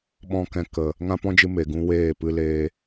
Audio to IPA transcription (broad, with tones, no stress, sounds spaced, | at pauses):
ɓ ɔ̃˦ k ɛ̃˧ k ə˨ | ŋ ã˦ p ɔ̃˦ d͡ʒ ɨ˧ m e˨ ɡ ũ˦ w eː˦˨ p ɨ˦ l eː˦